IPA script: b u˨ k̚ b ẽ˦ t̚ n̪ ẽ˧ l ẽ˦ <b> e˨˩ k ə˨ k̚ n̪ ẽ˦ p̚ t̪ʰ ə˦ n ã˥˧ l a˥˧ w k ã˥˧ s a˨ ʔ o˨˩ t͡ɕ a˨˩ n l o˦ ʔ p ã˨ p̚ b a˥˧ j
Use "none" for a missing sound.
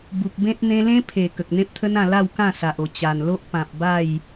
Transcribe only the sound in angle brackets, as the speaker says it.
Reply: pʰ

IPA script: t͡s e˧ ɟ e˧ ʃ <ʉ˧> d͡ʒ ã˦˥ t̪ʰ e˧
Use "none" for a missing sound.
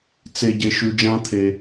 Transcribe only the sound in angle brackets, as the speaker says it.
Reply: ʉ˧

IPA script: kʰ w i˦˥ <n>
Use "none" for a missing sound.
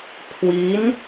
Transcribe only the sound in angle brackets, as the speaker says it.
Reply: n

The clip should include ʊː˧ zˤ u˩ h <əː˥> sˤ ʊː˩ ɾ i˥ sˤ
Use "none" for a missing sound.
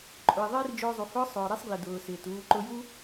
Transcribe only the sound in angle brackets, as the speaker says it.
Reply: ʊː˥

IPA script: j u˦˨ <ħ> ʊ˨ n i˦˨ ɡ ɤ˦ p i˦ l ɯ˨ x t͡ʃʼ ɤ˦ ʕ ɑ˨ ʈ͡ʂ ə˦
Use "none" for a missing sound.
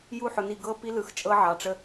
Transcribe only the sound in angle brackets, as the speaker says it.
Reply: ħ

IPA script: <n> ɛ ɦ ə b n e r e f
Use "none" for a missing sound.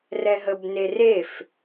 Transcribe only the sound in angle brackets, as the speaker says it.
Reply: r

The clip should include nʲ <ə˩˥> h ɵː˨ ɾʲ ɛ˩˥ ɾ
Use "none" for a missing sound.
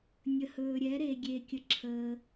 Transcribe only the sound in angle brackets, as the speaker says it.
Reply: ə˨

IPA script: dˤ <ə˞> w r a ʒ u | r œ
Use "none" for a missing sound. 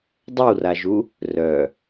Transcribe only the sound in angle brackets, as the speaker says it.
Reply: ə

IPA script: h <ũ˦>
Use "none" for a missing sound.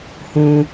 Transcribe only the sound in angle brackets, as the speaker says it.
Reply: ũ˦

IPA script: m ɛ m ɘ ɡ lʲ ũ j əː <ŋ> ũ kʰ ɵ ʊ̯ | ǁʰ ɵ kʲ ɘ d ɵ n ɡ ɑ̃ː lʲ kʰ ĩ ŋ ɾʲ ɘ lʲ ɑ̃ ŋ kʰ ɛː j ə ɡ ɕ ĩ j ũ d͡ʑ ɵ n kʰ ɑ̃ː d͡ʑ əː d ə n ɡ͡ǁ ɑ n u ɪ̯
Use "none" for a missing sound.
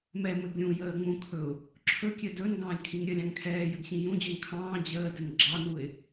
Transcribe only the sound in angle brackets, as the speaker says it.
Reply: ŋ͡m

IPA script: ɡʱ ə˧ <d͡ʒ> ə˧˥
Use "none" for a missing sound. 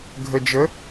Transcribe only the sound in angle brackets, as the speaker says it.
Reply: d͡ʒ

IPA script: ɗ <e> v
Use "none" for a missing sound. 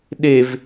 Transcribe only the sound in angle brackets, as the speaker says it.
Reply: e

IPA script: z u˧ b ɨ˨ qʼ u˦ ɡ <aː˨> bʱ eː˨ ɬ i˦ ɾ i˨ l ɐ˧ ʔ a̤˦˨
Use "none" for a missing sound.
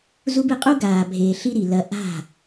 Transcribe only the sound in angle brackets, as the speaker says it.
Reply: aː˨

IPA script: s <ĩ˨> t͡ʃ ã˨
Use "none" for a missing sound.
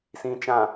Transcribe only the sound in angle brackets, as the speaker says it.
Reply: ĩ˨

